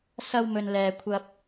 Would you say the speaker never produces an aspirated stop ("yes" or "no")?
no